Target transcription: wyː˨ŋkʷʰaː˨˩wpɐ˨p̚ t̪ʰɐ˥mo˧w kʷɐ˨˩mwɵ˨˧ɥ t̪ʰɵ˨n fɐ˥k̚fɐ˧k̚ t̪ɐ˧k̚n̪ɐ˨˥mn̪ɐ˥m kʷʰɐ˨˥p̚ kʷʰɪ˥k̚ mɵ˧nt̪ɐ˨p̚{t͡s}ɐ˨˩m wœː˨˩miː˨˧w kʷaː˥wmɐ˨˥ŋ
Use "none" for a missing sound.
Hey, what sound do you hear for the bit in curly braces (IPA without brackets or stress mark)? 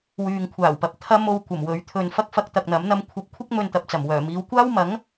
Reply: t͡s